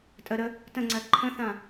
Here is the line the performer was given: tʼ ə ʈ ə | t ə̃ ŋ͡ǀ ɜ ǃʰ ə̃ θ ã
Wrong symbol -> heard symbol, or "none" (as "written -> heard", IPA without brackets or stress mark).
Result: ʈ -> ɾ